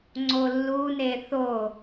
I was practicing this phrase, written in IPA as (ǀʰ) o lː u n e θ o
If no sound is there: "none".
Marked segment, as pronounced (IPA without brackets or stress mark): ŋ͡ǀ